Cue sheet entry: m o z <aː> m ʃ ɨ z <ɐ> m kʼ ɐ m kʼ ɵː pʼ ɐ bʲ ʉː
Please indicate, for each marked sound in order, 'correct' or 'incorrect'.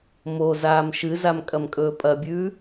correct, incorrect: a

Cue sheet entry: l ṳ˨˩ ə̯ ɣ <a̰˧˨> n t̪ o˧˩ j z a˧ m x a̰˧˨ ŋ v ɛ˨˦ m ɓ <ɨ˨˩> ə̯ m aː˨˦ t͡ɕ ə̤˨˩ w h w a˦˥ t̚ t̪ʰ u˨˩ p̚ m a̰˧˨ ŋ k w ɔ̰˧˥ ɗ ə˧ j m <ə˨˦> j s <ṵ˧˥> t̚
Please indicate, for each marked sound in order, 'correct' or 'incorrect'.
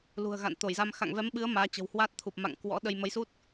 correct, incorrect: ɨ˨˦, correct, incorrect: u˦˥

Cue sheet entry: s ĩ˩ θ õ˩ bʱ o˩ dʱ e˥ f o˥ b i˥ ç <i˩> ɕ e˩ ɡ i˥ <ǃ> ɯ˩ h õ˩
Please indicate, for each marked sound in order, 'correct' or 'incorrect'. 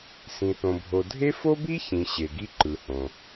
incorrect: ĩ˩, correct

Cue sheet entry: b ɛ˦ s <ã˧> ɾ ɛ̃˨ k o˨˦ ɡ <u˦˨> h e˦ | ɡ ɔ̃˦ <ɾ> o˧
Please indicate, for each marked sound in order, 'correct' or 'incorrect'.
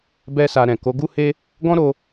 incorrect: a˧, incorrect: u˦, correct

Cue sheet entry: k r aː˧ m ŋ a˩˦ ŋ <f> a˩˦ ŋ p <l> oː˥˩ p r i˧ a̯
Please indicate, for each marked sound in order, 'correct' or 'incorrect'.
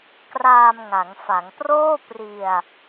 correct, incorrect: r

